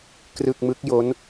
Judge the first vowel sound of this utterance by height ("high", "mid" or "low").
high